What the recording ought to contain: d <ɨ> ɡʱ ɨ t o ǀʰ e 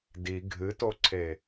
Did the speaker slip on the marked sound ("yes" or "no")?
yes